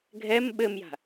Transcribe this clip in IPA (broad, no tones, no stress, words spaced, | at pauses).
ɡʱɛm ɓɘmja̤